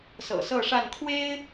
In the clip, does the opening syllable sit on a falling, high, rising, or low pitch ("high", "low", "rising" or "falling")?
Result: low